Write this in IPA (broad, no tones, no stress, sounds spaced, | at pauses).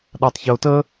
ɗ a tˤ ç ɵ ʊ̯ t ə